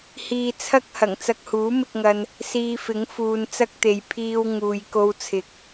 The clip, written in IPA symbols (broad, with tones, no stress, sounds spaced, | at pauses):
h iː˧ t͡sʰ ɐ˥ k̚ h ɐ˨˩ ŋ t͡s ɐ˧ k̚ h uː˨˥ m ɪ˧ k̚ ŋ ɐ˧ n | s iː˧ f ɪ˨˥ ŋ f uː˨˧ n t͡s ɐ˥ k̚ t̪ e˨ j pʰ iː˥ w ŋ uː˨ j k o˧ w t͡sʰ ɪ˨ k̚